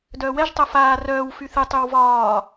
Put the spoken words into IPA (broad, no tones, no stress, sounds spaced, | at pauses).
d œː w ɛ ʒ tˤ œ f aː r œː w f y θ ɨ tˤ y w v ɒː